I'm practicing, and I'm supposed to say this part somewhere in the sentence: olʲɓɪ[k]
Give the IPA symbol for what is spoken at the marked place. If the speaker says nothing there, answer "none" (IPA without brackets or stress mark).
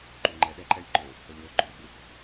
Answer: k